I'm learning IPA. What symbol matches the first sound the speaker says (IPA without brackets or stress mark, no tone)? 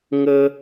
ŋ